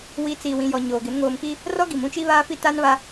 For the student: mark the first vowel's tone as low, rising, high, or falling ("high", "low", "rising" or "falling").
rising